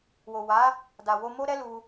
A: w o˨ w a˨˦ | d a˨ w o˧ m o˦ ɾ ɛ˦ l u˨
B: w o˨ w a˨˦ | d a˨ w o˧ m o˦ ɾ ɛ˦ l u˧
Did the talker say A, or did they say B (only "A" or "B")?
B